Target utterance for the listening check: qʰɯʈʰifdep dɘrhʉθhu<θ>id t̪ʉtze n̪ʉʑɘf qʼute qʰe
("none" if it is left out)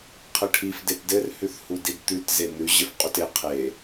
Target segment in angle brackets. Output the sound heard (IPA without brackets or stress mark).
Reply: d